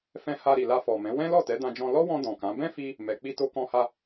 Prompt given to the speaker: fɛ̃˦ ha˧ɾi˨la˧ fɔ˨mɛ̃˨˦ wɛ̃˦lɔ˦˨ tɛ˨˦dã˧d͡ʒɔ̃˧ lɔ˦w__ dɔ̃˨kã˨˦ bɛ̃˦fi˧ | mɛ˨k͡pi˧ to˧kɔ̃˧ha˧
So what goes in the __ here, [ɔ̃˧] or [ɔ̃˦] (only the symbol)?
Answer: ɔ̃˧